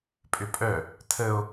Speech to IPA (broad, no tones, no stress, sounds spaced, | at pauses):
pʼ ʏ pʼ œ | tʰ ə o̯